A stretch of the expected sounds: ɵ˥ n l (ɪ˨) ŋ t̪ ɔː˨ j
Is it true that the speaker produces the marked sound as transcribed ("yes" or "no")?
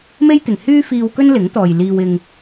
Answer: no